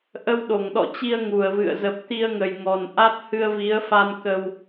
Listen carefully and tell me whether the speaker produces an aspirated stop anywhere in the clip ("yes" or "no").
no